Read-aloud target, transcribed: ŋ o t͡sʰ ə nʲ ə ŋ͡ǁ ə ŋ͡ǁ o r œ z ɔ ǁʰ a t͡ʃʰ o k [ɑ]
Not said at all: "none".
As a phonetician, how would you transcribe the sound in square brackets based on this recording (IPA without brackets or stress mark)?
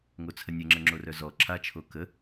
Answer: ə